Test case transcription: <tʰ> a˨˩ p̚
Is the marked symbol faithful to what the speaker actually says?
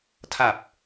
yes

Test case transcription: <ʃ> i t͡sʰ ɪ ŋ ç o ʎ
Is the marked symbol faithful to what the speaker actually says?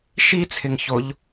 yes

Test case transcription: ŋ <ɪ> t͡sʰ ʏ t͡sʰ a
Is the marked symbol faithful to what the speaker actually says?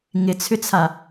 yes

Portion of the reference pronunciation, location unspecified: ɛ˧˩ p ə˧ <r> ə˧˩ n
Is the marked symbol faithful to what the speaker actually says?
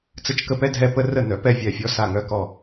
yes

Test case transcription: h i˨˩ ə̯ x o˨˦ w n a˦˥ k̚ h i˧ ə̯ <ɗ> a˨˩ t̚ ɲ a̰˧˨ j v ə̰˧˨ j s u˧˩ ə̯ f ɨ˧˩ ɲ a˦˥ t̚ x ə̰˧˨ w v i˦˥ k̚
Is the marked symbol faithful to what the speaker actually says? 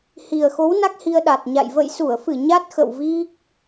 yes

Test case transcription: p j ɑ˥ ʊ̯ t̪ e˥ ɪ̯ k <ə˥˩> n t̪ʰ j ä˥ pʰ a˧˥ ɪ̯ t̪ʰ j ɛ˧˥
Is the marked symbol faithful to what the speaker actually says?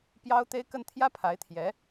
yes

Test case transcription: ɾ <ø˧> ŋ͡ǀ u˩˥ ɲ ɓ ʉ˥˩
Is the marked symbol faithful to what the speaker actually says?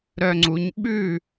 no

